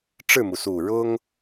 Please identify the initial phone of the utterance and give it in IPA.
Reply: ʈ͡ʂ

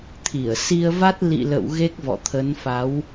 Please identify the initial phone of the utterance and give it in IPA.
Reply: t̪ʰ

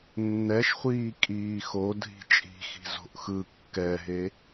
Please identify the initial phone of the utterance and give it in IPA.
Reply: nː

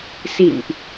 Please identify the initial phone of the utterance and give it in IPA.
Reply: s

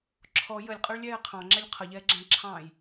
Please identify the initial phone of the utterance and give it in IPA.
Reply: ǁʰ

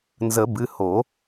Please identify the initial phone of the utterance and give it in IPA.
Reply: n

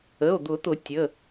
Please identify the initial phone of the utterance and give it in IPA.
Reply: ə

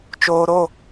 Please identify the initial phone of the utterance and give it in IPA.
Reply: t͡ʃ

